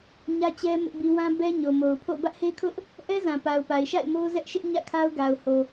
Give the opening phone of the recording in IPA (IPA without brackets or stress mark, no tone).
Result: ɲ